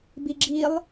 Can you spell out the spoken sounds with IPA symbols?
b i ɡ͡ǁ i lˠ

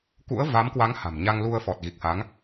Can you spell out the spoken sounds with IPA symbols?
k ṵ˧˥ ə̯ v a˨˦ m k w a˨˦ ŋ h a̤˨˩ m ɲ a˧ ŋ l u˧ ə̯ f ɔ˨˩ t̚ ɣ i˨˩ k̚ h a˨˦ ŋ

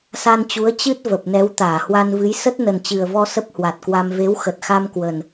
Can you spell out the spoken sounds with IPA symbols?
s a˧ n t͡ɕ u˨˦ ə̯ t͡ɕ ɨ˦˥ t̚ v ə˨˩ p̚ n ɛ˨˦ w t̪ aː˧˩ h w a˧ n v ɨ˨˦ j s ə˦˥ t̚ n ə˨˩ n t͡ɕ ɨ˨˩ ə̯ v ɔ˧ s ə˦˥ p̚ h w a˨˩ t̚ k w a˧ m v e˨˦ w x ə˨˩ t̚ x a˧ m k w ə˨˩ n

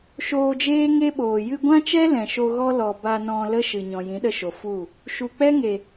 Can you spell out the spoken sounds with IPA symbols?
ʃ oː˧ d͡ʒ eː˦ ŋ e˦ ɓ oː˨ j ɨ˧ ɡʷ ã˦ t͡ʃ ɛ˦ l ɛ̃˨ ʃ o˧ ɣ ɔ˦ l ɔ˨ b a˧ n ɔ̃˧ l ə˦ ʃ ɨ˨ ɲ ɔ̃˨ j ĩ˨˦ ɗ ə˧ ʃ o˨ f u˦˨ | ʃ u˨ k͡p ɛ˦ ŋ e˨

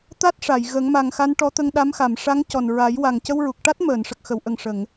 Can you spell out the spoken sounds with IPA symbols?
t̪ a˦˥ t̚ ʂ a˨˩˨ j ɣ ə˨˩˦ ŋ m a˨˩ ŋ x a˧ n ʈ ɔ˧˥ t̪ ə˧ ŋ ɗ a˧˥ m x a˨˩˨ m ʂ a˧˥ ŋ c ɔ˨˩ n ɹ a˨˩˦ j w a˨˩ ŋ c ə˧ w ɹ u˨˩ k̚ ʈ a˦˥ t̚ m əː˨˩˨ n ʂ ə˨˩ k̚ x ə˨˩˨ w ʔ ə˨˩ ŋ ʂ ə˨˩˨ ŋ

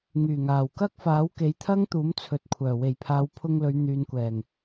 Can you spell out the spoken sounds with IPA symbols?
ŋ yː˨˩ ŋ aː˨˩ w k ɐ˥ k̚ f aː˨˥ w k e˨˥ j t̪ʰ ɐ˥ ŋ t̪ uː˨˥ m t͡sʰ ɵ˨ t̚ kʷʰ œː˨˩ w e˨˩ j pʰ aː˨˧ w pʰ ʊ˧ ŋ l ɵ˨˧ ɥ n̪ yː˨ n kʷ ɛː˨˩ ŋ

